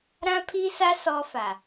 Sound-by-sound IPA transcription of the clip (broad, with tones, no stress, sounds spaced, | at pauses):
ɾ ã˦ pʰ i˦ s a˦ s ɔ˦ f a˨